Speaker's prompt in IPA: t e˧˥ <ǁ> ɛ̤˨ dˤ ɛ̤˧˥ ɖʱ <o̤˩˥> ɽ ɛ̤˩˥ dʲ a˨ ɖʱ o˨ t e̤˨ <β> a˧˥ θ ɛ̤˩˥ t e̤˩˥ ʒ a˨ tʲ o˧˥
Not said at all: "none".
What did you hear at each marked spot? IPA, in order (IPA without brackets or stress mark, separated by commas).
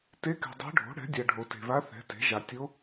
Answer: k, o̤˩˥, β